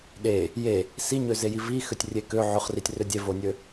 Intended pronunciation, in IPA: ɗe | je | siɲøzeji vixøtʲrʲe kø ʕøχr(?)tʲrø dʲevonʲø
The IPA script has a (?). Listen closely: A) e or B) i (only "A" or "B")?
B